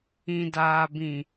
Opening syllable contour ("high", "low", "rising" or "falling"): low